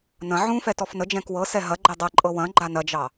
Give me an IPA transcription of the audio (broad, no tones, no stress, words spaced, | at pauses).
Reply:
nɐ̃ ʕũfɛ tɔfnəd͡ʒɛ̃k wɤsɛ ɦɐ ɡ͡ǃɛdˤɐǃʼɤ wɐ̃ ɡ͡ǃanɐd͡ʒɑ